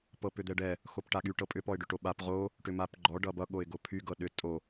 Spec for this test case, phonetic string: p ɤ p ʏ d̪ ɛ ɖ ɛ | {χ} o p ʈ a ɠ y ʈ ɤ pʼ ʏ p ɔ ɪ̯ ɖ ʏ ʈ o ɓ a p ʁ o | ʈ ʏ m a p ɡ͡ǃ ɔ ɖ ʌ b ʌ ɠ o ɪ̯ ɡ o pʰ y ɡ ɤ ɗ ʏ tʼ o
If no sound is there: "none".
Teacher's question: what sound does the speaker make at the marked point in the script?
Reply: x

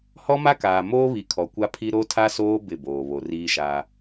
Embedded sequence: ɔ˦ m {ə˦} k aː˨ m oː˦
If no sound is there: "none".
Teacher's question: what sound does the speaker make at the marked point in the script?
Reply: a˦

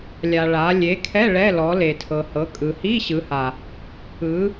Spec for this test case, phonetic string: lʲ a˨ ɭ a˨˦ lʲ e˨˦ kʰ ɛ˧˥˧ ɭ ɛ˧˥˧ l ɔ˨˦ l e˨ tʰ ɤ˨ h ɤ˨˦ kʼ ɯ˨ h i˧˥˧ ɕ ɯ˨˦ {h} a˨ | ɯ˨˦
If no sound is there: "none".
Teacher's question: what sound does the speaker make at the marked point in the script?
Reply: h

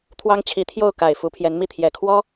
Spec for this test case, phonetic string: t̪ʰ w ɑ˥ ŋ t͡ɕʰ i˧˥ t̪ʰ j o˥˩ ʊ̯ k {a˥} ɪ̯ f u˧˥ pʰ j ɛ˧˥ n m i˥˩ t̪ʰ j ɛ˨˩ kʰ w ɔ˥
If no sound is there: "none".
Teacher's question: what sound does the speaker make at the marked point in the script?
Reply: a˨˩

